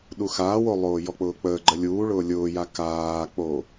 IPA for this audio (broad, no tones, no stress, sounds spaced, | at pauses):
ɗ u x aː w o lˠ oː j ɔ k͡p ʊː k͡p əː ɡ͡ǃ ə lʲ uː ɭ ʊː lʲ ʊː j a k aː k͡p o